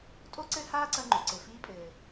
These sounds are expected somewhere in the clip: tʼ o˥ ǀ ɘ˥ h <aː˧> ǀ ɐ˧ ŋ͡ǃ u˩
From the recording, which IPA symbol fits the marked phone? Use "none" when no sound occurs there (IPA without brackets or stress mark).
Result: aː˥